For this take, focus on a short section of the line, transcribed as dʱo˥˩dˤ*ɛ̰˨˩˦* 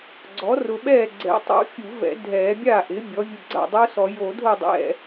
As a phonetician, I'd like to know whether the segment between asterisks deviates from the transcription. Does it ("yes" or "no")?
yes